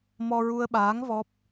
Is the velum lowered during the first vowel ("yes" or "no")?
no